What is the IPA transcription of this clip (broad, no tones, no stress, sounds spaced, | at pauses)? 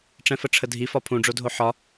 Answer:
ʈ͡ʂ ɛ̃ f ə ʈ͡ʂʰ ə dʱ i f ɒ pʰ ũ ɖ͡ʐ o dʱ o ħ ɒ